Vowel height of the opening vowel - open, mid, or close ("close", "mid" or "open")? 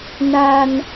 open